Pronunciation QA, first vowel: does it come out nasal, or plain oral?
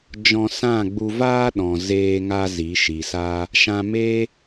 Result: nasal